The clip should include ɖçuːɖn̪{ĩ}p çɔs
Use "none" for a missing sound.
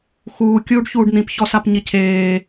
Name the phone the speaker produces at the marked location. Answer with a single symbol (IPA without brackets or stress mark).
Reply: ĩ